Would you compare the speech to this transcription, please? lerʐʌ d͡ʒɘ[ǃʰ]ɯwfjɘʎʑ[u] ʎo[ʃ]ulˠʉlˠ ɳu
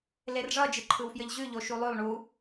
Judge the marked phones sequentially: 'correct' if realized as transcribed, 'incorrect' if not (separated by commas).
correct, incorrect, correct